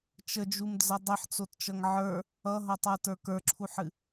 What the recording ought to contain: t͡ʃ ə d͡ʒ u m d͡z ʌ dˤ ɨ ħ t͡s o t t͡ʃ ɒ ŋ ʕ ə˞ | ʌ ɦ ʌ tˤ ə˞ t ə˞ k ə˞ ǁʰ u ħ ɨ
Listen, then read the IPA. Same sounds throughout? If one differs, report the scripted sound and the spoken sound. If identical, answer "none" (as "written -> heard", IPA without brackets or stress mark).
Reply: ɒ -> ʌ